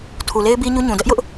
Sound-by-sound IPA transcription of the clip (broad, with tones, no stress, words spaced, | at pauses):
tʰu˨le˦ɪ̯bi˦ ɲu˦ɲũ˨ dɛ˦ʔjʊ˦ʔ